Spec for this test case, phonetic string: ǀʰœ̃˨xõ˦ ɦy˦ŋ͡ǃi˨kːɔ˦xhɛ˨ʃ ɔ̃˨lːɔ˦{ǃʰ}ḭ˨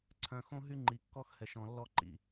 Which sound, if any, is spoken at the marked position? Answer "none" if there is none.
ǃ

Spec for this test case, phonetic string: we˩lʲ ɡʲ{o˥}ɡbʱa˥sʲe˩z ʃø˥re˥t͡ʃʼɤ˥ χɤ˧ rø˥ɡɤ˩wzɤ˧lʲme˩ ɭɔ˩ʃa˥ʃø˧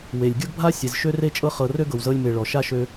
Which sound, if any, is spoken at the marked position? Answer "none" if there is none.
ɤ˥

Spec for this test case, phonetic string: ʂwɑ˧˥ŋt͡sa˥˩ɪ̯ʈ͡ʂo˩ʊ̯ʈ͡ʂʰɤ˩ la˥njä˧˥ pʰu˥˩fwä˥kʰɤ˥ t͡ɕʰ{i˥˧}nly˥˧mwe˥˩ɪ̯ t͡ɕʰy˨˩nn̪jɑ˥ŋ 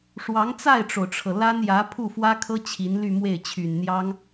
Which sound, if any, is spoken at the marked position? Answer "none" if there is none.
i˧˥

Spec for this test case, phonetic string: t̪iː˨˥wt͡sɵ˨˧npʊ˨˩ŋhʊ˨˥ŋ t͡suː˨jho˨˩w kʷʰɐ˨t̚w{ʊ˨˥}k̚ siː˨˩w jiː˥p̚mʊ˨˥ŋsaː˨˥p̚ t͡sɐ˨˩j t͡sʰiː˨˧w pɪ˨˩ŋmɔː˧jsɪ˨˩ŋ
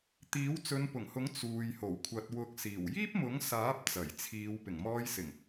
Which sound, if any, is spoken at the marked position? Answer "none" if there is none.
ʊ˨˥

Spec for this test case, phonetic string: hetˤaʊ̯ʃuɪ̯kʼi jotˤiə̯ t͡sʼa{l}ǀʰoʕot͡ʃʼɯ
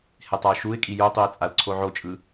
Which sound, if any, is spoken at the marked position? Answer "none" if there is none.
l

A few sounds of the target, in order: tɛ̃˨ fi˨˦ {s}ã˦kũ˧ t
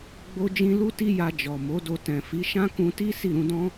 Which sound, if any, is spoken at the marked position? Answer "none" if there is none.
ʃ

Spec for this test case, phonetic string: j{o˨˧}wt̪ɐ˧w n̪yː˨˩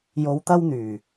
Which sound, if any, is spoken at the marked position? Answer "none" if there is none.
o˨˧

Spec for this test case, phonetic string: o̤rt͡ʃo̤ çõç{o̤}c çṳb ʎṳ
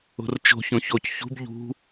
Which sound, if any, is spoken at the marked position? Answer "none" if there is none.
o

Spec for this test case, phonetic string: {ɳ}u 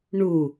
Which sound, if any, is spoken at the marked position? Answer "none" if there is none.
ɳ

